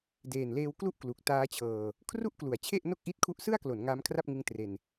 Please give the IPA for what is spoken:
deː˨˩nleː˧wklu˥˩ʔklu˨˩k̚ taː˦˥t͡ɕʰɤː˧ | kʰru˥˩ʔklu˩˦a̯t͡ɕʰe˥˩ʔ no˥˩k̚ʔi˦˥t̚ kʰu˦˥ʔsɯ˥˩a̯klo˩˦n ŋaː˦˥mkʰra˥˩p̚ŋɯ˦˥ŋ tre˧n

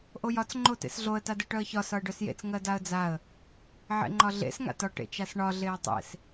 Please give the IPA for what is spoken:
ʔojɒt͡s ŋ͡ǃotḛsɮoə̯ tadeʈœə̯çɒ sɒə̯ɖœsjḛt͡s ŋɜdaə̯d͡zaə̯ | ʕḛŋ͡ǃɒɮḛs ŋa̰tɒ ʈḛt͡ʃasɳɒ ɮeə̯tˤḛs

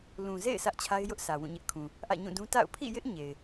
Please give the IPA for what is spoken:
lũ˨zḛ˦˨ɪ̯ sʰä˦ʔt͡ɕʰa˦ɪ̯jʊ˦ʔ sʰä˨wũ˦˨ɲɪ˦ʔkʰũ˨ | ʔä̰˦˨ɲũ˦˨dũ˦ ta̰˦˨ʊ̯ pʰḭ˦˨jɪ˦ʔ ɲe˨ɪ̯

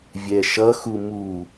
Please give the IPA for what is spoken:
vʲɛʃʌxu mu

